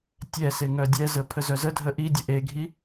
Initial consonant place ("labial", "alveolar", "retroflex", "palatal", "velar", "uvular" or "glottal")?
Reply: alveolar